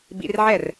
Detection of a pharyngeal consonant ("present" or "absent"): present